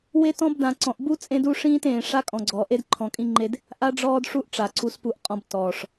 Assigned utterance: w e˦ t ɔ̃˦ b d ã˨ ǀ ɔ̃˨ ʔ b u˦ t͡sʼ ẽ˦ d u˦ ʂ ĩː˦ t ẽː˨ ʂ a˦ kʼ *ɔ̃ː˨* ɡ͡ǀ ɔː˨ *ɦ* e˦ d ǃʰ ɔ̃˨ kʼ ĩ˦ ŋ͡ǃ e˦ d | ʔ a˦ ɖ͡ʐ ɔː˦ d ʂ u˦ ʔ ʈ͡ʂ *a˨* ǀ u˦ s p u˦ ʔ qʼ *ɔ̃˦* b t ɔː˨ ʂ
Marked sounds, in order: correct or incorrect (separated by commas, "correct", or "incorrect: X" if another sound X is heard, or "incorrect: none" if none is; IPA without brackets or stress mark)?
incorrect: ɔ̃˨, incorrect: ʔ, correct, correct